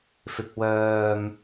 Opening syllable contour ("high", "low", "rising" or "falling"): low